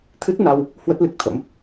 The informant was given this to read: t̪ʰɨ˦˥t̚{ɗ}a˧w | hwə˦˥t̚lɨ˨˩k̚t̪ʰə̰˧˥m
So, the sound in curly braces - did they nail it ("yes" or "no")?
no